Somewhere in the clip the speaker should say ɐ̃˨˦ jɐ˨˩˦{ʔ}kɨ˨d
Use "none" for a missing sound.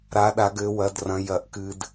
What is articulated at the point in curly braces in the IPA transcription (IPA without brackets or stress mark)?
ʔ